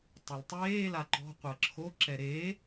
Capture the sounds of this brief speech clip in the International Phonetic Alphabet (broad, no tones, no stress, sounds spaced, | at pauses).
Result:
tˤ ɛ l tˤ eː l a ǃ ɔ̤ qʷ əː ǁʰ o ǁ ɛ ɾ eː